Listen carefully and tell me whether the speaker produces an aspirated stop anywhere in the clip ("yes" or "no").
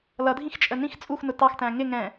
no